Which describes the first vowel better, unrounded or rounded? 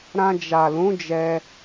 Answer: unrounded